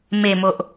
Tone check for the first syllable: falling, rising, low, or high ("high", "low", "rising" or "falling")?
low